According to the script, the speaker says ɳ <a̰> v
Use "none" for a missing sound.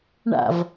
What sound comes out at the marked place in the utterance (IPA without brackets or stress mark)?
a̰